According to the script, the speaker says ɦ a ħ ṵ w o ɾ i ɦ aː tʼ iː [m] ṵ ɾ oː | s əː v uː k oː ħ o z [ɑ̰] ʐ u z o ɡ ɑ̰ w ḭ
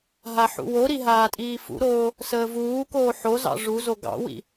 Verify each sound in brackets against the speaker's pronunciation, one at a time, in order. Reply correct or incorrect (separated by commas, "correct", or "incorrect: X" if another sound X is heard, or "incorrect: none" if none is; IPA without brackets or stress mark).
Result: incorrect: f, correct